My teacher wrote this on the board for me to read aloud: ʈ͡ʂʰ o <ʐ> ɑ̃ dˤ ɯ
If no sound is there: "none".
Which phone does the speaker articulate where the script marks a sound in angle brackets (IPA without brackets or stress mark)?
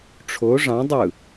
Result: ʐ